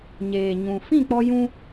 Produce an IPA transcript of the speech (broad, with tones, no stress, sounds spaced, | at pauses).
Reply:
ɲ eː˨ ɲ ũ˨ f ĩ˦˨ k͡p ɔ˧ j ũ˧